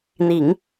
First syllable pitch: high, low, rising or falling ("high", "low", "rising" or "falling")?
low